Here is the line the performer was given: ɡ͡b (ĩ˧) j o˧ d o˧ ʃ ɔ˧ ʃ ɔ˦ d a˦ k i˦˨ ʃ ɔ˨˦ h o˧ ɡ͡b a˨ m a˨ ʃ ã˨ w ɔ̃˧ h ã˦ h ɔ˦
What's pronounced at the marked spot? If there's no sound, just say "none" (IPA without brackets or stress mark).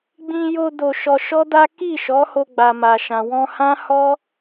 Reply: ĩ˧